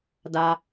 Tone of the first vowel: low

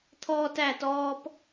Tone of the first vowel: high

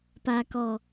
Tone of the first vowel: low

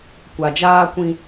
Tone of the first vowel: low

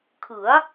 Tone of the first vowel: rising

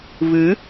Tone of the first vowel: rising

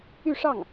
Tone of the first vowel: falling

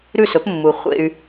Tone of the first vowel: falling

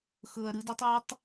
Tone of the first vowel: low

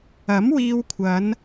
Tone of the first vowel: rising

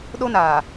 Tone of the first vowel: high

